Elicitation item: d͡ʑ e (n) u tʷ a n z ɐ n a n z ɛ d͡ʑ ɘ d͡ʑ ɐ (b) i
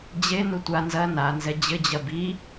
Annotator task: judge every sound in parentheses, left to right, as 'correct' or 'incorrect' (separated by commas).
correct, correct